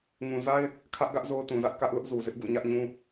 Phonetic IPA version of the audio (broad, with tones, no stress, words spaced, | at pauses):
ŋũ˨za˦ɪ̯ | kʰä˦ʔɡä˦ʔ zo˦ʊ̯tũ˨zä˦ʔ kä˦ʔlʊ˦ʔ zu˨zɪ˦ʔ ɡṵ˦˨ɲä˦ʔɲũ˦